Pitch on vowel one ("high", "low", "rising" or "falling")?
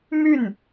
falling